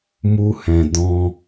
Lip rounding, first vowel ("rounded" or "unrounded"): rounded